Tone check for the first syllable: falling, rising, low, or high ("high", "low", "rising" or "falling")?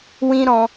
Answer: high